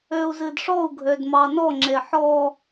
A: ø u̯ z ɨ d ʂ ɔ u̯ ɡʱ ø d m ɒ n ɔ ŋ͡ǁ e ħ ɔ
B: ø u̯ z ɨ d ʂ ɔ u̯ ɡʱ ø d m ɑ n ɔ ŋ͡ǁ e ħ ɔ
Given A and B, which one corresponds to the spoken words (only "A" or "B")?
B